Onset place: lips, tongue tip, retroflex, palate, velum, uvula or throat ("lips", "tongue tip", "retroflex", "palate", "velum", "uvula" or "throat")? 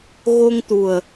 velum